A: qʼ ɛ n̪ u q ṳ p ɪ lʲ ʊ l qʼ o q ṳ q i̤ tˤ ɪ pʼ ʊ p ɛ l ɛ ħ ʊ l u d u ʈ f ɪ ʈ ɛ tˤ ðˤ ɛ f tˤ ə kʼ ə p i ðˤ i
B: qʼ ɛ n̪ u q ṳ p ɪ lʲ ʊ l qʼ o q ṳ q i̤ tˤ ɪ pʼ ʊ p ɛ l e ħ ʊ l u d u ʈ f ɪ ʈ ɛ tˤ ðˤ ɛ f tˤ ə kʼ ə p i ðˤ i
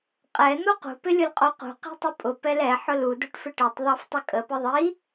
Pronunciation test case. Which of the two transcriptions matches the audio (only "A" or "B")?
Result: A